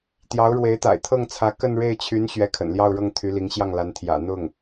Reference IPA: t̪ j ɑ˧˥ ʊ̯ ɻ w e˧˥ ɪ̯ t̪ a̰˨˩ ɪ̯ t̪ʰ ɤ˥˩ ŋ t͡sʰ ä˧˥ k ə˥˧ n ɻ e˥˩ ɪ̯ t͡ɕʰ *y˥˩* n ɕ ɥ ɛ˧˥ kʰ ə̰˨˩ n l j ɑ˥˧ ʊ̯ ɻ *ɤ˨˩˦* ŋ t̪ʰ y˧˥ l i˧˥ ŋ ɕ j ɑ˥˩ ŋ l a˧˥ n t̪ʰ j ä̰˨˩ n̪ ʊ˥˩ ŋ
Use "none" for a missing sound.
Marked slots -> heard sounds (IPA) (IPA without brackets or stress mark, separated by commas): y˧˥, ɤ˥˩